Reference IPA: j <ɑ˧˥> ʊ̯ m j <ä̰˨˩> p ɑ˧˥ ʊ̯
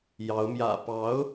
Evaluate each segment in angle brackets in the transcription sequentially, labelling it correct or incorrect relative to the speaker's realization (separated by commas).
correct, correct